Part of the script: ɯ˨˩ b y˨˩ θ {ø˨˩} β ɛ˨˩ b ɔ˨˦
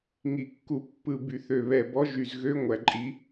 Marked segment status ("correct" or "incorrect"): correct